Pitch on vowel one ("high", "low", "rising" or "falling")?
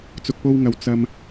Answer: low